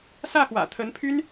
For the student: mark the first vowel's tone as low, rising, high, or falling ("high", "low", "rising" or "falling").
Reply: falling